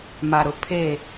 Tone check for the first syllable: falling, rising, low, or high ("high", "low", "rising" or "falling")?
low